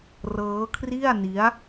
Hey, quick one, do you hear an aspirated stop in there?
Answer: yes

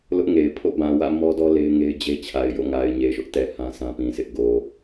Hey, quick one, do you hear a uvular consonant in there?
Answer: no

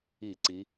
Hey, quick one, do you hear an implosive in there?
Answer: no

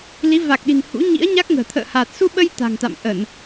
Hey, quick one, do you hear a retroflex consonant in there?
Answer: no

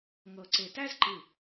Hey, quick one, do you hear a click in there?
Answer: yes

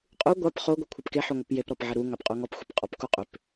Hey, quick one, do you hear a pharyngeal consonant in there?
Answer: yes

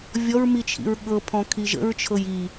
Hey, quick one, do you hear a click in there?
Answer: no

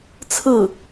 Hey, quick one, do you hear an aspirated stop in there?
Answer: yes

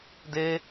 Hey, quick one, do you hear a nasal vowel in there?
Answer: no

